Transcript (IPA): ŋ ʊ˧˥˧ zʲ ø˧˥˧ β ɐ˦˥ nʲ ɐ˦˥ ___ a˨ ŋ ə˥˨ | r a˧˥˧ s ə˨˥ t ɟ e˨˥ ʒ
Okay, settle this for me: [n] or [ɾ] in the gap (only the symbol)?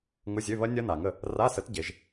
n